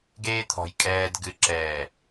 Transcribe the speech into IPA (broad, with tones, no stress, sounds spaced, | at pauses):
ɡ eː˦ t̪ʰ ɔ̤˨ j kʼ ɛː˨ d ɡ ɨ˨ ǁ ɛː˨